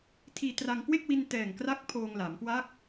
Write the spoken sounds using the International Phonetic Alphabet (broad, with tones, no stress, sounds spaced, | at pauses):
tʰ iː˧ t r a˧ ŋ k w e˥˩ k̚ w i˧ n t ɛː˨˩ ŋ k r a˦˥ k̚ pʰ oː˧ ŋ l a˩˦ m k w a˦˥ k̚